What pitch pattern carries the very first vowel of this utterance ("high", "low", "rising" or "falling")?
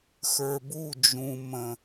low